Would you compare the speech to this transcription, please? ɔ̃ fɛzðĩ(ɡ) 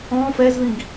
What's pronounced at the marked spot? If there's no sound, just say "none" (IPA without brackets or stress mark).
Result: ɡ